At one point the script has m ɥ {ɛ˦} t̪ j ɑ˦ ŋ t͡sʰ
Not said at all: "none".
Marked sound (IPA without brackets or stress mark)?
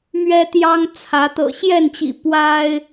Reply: ɛ˦